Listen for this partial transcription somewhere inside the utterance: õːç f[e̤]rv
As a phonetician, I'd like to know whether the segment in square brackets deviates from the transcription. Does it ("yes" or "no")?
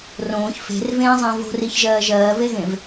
no